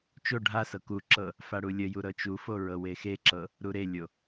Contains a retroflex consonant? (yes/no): yes